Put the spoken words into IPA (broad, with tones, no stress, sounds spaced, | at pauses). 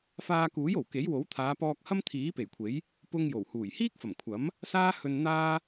f aː˧ k uː˨˥ j o˨˩ w k e˨˥ j w o˨˥ w t̪ʰ aː˨˧ p ɔː˧ k̚ h ɐ˥ m t̪ʰ iː˨˥ p e˨˩ j kʷʰ e˨˥ j | p ʊ˧ ŋ j o˨˩ w h uː˨˩ j h iː˥ k̚ f ɐ˨˩ m kʷʰ ɐ˨˥ m | s aː˥ h ɵ˧ n n̪ aː˥